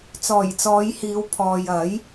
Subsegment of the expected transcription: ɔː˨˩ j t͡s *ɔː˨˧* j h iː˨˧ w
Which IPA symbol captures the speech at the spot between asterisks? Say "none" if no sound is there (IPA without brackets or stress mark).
ɔː˨˧